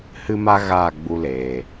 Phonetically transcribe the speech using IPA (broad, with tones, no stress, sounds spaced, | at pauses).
h ɨ˦ m a˦ ɣ aː˦˨ ɡ͡b u˧ l eː˨